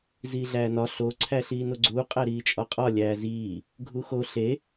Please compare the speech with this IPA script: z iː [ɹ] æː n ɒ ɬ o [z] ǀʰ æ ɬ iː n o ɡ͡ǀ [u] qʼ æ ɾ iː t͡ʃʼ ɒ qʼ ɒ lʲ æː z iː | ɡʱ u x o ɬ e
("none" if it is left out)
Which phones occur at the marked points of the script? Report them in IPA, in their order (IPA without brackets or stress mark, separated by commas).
ɮ, none, uː